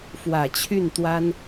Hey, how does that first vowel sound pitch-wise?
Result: low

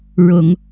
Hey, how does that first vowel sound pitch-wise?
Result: low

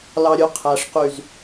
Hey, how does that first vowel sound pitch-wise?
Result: low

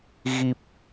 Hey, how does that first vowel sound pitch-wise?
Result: low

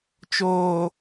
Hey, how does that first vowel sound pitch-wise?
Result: low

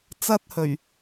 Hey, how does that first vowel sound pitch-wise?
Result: high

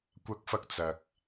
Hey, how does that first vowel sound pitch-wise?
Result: high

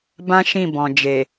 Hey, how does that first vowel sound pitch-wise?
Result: high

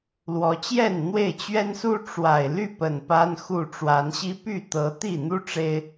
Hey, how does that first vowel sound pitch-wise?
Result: rising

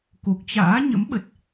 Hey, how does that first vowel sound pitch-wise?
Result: low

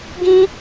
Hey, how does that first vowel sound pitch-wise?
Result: high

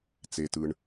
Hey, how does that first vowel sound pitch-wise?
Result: low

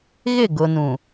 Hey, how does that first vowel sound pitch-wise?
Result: falling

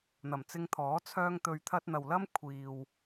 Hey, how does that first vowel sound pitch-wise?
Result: low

